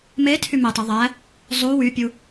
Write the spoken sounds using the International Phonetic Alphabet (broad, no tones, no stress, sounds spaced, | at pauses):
m e tʰ y m e tˤ i ðˤ æ | zˤ u w y pʲ u